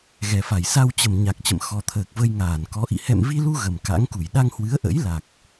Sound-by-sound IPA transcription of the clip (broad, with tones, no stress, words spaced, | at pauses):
ɣɛ˨˩fa˧˩j sa˧wt͡ɕə˨˩m ɲa˨˩k̚t͡ɕə̰˧˨m xɔ˨˩t̪ʰəː˨˩k̚və˧j ŋaː˧˩nkɔ˨˦ʔḭ˧˨ hɛ̰˧˨mvi˧lu˧ ɣə˨˩mka̰˧˥ŋku˧˩j ɗa˧ŋhwɨ˨˦ə̯ʔə̰˧˥j la˨˩k̚